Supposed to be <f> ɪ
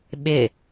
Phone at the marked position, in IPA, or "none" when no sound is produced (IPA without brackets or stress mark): ɓ